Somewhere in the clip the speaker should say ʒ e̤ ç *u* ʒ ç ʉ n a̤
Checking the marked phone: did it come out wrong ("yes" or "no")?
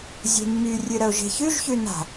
yes